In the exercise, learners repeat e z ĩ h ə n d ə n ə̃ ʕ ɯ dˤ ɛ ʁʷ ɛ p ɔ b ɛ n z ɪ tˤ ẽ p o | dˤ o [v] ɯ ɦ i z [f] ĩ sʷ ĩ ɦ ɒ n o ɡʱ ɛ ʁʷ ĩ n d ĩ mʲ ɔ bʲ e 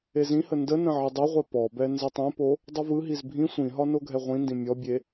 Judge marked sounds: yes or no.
yes, no

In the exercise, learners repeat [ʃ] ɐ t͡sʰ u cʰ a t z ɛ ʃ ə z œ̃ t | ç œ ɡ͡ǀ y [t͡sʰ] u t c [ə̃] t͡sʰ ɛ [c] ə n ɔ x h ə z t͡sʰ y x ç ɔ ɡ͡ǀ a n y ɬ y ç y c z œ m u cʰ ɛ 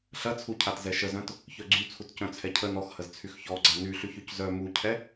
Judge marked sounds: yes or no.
no, yes, no, no

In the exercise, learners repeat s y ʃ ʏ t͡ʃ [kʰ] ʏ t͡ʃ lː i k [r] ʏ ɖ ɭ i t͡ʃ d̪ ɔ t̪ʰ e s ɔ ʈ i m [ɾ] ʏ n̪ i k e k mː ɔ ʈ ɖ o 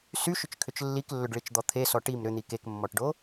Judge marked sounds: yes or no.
yes, no, yes

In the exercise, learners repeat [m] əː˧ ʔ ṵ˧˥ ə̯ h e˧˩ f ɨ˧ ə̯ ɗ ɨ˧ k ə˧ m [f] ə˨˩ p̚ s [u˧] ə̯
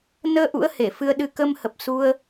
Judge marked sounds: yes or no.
no, no, yes

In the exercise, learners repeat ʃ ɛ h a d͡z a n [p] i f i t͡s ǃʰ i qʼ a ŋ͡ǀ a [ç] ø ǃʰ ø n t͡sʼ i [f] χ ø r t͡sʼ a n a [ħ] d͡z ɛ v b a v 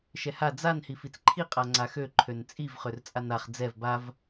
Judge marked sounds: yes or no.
no, no, no, no

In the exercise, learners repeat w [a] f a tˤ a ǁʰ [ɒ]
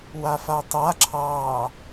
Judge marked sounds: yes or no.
yes, no

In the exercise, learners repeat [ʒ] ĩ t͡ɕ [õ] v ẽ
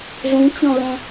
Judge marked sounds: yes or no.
no, yes

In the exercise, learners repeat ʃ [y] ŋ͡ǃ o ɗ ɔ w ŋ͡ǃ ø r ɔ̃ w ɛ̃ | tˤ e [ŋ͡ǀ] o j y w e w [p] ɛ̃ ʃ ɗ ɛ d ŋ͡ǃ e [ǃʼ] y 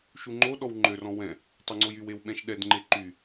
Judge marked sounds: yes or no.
no, yes, no, no

